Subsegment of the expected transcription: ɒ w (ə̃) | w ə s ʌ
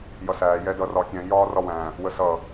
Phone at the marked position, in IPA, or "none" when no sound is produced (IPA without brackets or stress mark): æ̃